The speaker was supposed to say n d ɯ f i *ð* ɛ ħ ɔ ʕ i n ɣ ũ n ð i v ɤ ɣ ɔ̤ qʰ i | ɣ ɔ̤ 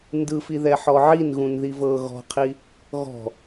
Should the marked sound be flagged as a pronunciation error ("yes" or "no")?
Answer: no